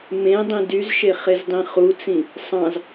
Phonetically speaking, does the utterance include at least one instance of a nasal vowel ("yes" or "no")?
yes